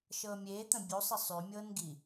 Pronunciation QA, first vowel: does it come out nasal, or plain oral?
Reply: oral